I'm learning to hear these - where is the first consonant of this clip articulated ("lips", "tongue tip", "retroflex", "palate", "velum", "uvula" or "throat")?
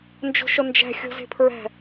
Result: tongue tip